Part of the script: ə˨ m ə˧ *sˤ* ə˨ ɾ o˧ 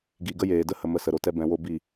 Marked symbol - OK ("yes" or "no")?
no